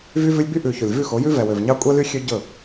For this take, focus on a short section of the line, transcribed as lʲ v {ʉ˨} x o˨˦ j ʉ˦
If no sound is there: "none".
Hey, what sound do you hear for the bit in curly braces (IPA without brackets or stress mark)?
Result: ʉ˦˨